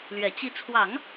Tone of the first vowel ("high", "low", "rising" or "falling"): low